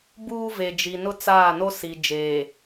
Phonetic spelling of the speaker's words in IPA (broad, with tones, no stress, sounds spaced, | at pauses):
b uː˦ v e˨ d͡ʒ iː˨ n ʊ˦ t͡s a˦˨ n o˦ s i˨ d͡ʒ eː˨